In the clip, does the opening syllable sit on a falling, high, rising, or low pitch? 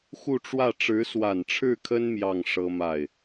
falling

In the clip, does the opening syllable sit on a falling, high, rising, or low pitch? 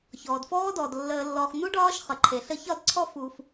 low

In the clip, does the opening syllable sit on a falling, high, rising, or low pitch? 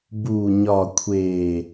low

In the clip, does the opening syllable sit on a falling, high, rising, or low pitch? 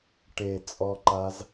low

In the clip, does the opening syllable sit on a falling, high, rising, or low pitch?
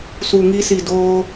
low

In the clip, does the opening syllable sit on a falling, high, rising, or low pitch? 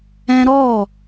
high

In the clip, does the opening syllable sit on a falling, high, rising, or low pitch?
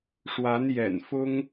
rising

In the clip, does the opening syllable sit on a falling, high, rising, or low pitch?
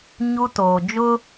high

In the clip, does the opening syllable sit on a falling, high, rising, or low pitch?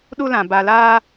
high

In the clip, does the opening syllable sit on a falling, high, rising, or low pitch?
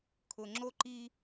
low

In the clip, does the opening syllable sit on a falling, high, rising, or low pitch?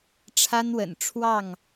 high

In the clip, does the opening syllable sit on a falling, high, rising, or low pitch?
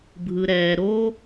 low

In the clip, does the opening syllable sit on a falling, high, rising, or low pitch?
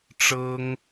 high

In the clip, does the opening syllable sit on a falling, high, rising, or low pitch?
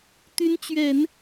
rising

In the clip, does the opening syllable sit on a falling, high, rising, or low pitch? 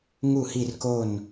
falling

